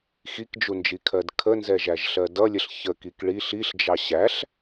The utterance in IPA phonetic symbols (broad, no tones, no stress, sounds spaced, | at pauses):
x i k d͡ʒ u n d͡ʒ i kʰ ɜ d kʰ ə n z ɛ ʒ æ ʒ ɬ ɜ d ʌ lʲ ə ɬ ç ə k i k ɭ i ɬ i ɬ d͡ʒ ɑ ɕ æ ɬ